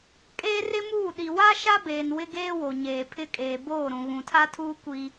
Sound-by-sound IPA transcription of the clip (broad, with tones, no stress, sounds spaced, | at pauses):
kʼ eː˦ r ɪ˦ m uː˦˨ ɗ i˨ w a˦ ʃ a˦ b eː˨ n w ɪ˦ ɡ eː˦ w o˨ ɲ eː˨ pʰ ɪ˦ kʼ eː˨ b oː˦˨ ɾ ũ˨ ɣ ũ˨ tʰ a˦ tʰ uː˦ kʷ i˦